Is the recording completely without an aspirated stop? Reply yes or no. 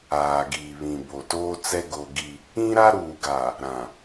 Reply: yes